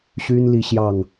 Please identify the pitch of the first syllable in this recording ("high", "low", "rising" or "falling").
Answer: high